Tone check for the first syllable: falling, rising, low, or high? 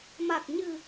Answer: low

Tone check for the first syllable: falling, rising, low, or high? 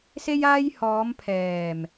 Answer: high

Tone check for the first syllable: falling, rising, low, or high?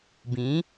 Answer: rising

